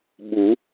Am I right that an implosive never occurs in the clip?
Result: no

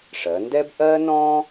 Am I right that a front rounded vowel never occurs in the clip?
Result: yes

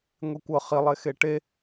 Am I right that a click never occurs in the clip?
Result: yes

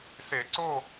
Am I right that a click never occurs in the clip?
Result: no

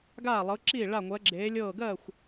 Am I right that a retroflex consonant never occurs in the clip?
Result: no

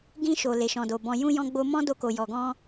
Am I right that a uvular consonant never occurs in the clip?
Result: yes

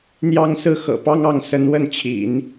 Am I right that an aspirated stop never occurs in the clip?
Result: no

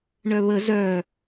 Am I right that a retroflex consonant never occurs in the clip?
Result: no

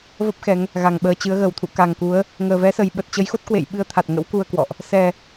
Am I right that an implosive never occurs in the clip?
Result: no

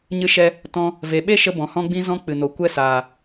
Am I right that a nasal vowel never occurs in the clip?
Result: no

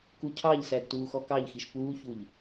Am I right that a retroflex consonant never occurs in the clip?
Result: yes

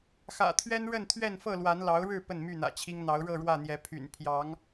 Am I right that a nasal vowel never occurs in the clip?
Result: yes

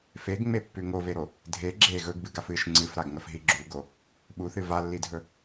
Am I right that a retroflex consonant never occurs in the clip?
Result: yes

